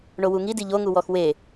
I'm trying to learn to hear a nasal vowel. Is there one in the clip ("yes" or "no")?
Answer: no